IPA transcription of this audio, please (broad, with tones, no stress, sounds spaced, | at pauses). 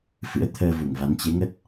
f ɨ̰˧˥ ə̯ t̪ʰ əː˧ v u˧˩ ŋ v a˨˦ n t͡ɕ e˨˦ ŋ ə˦˥ t̚